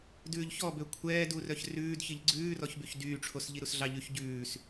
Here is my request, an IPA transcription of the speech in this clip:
d ʉː ʎ ç ɔ b ø kʷʰ ɛː d u r œ ç r ʉː d ç i ʎ ɡ͡ǀ ʉː r ɔ ç b y ç d yː ʈ͡ʂʰ o s ʎ i ɾ u s ɮ ɑ ʎ ʉ ç ɟ ʉː s

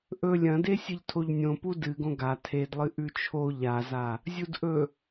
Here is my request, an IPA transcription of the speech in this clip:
ʔ ɵ lʲ ɐ̃ d e sʲ ɨ ʎ tʰ o ʎ nʲ õ p u d ɨ ɡ õ ɡ a tʰ e d lˠ ɨ ʔ ʉ t͡ʃʰ o ʎ a z a | zʲ u d ʔ ɵ

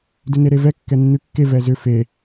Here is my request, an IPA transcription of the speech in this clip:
d ʏ n e ɾ e v ɛ kː ɛ nː ʉ kː e v ɛ z ʏ f e

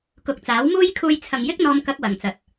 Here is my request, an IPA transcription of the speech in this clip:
k ʊ˨ k̚ t͡s aː˨˥ w m uː˥ j kʰ uː˧ j t͡sʰ ɐ˨ ŋ j ɪ˥ k̚ n̪ ɔː˧ m k ɐ˥ k̚ w ɐ˨ ŋ t͡s ɐ˨ t̚

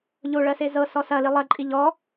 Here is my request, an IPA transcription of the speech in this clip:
ʎ o ɭ ɜ s e z ɤ s ɔ s ɐ l i lˠ ɐ ǃʼ i ʎ ɔ

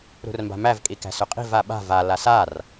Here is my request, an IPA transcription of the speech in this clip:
ɾ ṳ r m b a̤ m æ v kʼ i k æ̤ s ɵ qʼ i̤ v a ɓ a̤ v a l a s a r

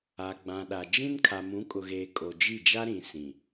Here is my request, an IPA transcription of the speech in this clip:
a˨ ɡ͡b ã˨ ɗ a˨ d͡ʒ ĩ˦ n kʰ a˨ m ũ˨˦ kʼ ʊ˨ ɣ eː˨ kʼ o˨ d͡ʒ i˦˨ d͡ʒ a˦ ɾ ĩ˨ s ĩ˨

